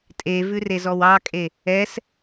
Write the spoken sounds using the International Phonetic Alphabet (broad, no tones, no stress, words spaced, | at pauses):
tʼevʉrezɔw ɑkʼe | ɛs